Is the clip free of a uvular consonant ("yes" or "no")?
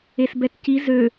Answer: yes